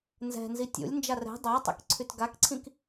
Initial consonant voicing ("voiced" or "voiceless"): voiced